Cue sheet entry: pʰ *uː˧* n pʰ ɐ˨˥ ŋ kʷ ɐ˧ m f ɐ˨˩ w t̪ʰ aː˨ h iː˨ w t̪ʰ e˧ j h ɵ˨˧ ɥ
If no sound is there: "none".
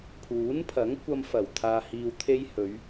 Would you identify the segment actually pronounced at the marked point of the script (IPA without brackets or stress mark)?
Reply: uː˨˥